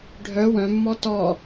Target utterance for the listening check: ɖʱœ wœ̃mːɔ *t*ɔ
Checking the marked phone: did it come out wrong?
no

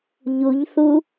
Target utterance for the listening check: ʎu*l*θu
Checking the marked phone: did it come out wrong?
yes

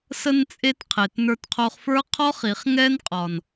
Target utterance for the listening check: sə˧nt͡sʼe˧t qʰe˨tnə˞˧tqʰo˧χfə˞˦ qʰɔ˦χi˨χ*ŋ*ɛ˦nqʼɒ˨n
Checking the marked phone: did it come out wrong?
no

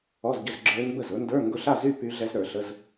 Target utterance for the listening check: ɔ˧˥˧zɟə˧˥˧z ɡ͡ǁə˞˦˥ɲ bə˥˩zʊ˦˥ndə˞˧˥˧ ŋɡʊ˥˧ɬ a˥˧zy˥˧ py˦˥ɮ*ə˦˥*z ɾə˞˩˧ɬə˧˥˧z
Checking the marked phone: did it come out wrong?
yes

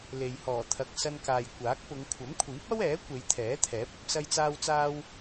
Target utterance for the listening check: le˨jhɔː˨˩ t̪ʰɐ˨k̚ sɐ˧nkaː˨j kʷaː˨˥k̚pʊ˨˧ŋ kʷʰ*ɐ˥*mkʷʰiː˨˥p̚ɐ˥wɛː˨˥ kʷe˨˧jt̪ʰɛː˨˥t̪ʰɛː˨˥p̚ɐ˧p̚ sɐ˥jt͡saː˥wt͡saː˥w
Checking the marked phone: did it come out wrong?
yes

